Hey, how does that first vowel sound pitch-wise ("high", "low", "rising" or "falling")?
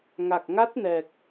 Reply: low